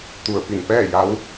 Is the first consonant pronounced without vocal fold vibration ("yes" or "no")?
yes